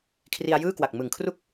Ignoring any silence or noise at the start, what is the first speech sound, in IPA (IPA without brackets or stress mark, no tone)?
kʰ